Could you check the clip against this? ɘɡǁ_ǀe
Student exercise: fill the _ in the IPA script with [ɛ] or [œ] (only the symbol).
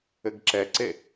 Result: ɛ